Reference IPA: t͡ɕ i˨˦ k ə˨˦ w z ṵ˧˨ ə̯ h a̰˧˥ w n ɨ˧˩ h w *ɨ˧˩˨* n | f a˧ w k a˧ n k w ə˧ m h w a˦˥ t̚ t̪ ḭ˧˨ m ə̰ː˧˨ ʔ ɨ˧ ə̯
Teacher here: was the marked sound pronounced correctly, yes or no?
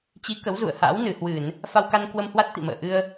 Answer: yes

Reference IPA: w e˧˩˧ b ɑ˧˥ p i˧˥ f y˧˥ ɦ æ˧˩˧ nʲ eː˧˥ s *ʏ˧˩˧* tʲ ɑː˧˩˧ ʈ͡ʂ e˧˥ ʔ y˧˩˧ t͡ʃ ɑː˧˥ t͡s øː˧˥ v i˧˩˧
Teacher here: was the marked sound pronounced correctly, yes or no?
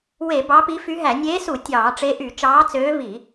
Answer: no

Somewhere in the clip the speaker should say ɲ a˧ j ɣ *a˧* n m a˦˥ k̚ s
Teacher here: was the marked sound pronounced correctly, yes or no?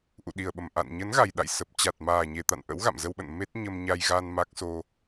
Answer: yes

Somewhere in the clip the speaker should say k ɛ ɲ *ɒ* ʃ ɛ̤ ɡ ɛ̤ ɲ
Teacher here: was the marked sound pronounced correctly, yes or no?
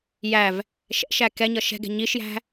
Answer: no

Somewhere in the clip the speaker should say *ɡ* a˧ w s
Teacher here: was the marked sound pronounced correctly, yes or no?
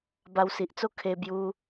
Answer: no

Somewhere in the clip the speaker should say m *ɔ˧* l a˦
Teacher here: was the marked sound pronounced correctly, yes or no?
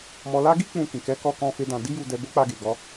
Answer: yes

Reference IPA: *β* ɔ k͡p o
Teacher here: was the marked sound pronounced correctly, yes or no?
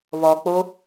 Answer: yes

